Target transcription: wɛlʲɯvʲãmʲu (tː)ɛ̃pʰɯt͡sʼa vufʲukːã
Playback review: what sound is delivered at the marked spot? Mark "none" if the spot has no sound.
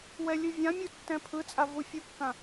tː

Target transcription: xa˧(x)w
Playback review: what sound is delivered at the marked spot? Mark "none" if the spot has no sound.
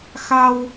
none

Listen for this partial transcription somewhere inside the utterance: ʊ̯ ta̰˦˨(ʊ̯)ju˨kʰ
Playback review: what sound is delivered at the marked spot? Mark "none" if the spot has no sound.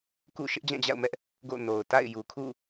ɪ̯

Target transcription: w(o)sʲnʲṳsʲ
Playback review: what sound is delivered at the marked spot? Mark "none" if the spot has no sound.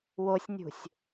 o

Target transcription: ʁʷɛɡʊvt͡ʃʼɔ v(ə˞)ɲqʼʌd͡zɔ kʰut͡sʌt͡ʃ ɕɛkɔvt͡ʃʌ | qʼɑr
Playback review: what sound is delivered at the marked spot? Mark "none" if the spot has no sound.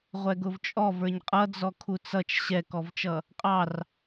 ə˞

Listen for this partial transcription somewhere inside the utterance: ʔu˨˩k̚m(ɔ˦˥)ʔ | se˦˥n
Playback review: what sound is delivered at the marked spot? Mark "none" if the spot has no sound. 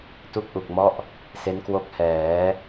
ɔ˦˥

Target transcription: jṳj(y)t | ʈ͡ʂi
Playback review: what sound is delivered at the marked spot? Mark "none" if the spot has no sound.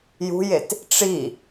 e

